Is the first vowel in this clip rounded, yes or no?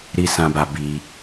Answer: no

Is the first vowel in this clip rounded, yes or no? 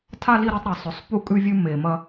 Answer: no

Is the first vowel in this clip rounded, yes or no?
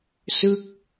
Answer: no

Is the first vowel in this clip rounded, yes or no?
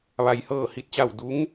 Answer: no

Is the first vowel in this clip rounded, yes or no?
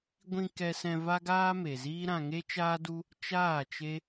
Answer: no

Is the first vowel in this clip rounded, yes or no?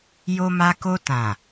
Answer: yes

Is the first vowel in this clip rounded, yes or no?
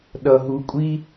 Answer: no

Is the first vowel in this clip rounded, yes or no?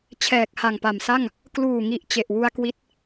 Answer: no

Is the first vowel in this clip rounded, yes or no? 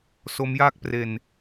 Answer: yes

